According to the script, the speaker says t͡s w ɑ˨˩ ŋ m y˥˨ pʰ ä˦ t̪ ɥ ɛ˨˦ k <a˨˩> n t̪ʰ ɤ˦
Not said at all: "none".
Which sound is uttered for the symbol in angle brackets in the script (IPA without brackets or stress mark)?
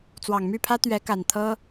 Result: a˨˩